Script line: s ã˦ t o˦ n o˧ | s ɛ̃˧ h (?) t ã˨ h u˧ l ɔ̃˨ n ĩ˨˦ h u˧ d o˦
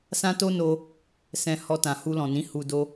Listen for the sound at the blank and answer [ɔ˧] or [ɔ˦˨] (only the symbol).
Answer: ɔ˧